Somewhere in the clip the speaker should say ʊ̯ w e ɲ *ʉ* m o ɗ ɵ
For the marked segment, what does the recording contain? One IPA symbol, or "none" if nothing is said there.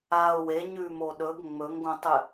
ʉ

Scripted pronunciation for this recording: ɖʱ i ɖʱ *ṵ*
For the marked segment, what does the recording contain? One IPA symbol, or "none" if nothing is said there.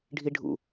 ṵ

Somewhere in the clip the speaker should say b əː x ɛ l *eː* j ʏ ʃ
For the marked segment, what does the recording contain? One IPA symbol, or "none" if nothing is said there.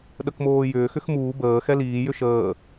iː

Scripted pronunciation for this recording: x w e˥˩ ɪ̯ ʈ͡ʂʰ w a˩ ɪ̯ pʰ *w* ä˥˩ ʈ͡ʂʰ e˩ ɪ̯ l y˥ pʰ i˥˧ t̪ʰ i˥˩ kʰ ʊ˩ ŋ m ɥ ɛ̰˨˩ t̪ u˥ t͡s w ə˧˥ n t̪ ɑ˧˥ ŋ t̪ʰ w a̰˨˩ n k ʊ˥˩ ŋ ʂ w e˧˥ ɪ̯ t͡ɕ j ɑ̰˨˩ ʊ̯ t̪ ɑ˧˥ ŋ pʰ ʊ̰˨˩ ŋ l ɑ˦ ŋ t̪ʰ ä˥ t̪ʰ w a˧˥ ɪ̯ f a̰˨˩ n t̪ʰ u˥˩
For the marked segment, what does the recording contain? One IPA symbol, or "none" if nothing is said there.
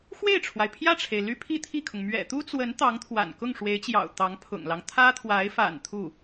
j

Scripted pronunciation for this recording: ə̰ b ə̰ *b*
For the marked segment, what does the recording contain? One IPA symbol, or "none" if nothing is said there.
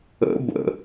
none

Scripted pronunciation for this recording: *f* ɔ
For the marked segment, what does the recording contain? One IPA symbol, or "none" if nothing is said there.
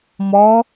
m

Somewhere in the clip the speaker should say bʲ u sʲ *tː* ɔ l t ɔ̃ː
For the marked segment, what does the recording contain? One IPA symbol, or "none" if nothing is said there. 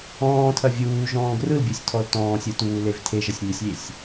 tʰ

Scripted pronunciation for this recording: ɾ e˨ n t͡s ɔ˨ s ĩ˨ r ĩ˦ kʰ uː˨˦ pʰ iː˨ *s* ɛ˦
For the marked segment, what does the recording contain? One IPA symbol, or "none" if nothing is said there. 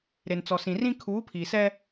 s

